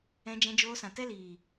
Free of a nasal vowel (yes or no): no